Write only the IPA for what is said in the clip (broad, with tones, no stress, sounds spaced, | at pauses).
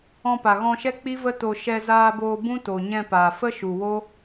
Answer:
ɔ̃˧ p a˨ ɣ ɔ̃˧ ʃ ɛ˦ k͡p i˦ v ə˦ t o˧ ʃ ɛ˧ z aː˧ b oː˧ b ũ˦ t o˨ ɲ ɛ̃˧ p aː˨ f ə˦ ʃ u˨ w o˦